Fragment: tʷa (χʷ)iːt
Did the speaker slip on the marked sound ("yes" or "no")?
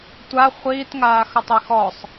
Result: no